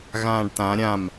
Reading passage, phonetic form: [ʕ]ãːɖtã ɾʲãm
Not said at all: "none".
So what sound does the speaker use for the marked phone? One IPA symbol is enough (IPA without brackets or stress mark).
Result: ɣ